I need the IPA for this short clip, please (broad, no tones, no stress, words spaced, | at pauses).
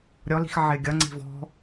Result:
ɾʲɔli̤x ʕɪːɡʲʌŋ͡ǀi̤ vɔ̤